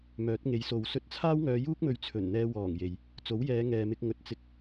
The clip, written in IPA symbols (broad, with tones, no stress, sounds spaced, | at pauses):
m œː˨˥ t̚ ŋ e˨˥ j s o˨ w s ɵ˥ t̚ t͡sʰ aː˥ w ŋ œː˨˧ j uː˥ k̚ m ɵ˨˧ ɥ t͡sʰ ɵ˨˩ n n̪ ɛː˧ w ɔː˨˩ ŋ j e˨ j | t͡s o˨˥ w j ɛː˨˧ ŋ ɛː˨ m ɪ˧ k̚ ŋ ɵ˨ t̚ t͡s ɪ˧ k̚